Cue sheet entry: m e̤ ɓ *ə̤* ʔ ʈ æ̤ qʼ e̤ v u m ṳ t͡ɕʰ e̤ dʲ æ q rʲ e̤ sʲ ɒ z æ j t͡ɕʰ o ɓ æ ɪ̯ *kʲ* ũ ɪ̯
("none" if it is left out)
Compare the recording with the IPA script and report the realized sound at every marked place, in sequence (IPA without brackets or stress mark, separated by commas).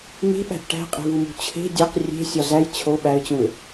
æ̤, t͡ɕ